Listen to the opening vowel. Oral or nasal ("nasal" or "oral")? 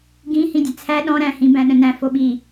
nasal